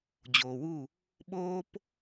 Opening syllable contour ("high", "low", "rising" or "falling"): low